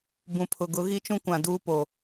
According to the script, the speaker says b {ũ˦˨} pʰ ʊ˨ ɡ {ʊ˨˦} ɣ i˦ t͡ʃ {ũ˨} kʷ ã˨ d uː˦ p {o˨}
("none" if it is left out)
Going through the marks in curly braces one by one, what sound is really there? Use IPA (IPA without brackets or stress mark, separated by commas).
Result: ũ˨, ʊ˨˦, ũ˦, o˨